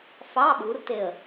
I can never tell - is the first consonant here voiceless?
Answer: yes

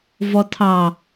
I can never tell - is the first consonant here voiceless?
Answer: no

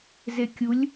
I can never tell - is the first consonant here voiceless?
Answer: no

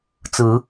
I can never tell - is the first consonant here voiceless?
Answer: yes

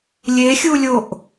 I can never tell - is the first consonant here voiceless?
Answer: no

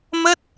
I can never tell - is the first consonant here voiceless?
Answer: no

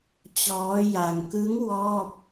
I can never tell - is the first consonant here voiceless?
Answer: yes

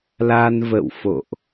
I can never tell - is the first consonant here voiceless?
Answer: no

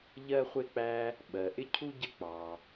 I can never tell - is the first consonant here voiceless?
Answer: no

